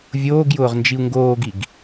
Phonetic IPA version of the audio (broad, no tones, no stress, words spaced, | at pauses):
vʲoːɡjʊːʁ nd͡ʒiu̯ŋɡoːɡiɡ